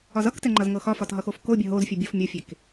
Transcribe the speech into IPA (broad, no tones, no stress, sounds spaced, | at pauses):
ɒ z ʌ k t ɛ ŋ͡ǃ ʌ z ŋ ɤ x ɒ f ɒ t ɦ ʌ x o f k o bʲ ʌ ɦ o z fʲ u bʲ o f mʲ ɔ fʲ e k